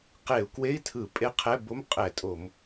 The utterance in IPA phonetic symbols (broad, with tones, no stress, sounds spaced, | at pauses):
q e˧˩˧ u̯ k w e˧˥˧ i̯ tʰ ɯ˧˩˧ pʼ e˧˥˧ qʰ ɛ˧˥˧ b o˧˥˧ m qʼ ɛ˧˩˧ tʼ o˧˩˧ m